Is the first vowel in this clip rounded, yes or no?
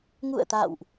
yes